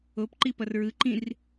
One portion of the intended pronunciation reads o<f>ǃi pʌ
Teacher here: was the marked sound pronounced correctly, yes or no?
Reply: no